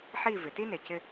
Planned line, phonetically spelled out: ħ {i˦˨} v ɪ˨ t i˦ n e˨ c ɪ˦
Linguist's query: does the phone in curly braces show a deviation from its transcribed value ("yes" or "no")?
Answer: no